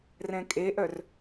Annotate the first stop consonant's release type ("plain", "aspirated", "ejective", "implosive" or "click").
ejective